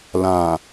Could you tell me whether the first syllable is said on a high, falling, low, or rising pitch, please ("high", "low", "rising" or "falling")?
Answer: low